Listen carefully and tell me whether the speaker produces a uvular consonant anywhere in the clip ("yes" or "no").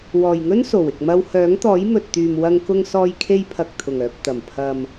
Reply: no